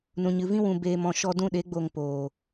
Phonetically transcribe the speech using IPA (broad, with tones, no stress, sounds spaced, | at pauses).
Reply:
n ũ˨ ɲ ɨ˨ v ĩ˧ w ũ˨ b eː˨ m ɔ̃˨ ʃ ɔ˧ d ũ˦˨ ɗ e˨˦ ɡ͡b o˨ ŋ p oː˨